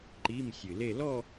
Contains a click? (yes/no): yes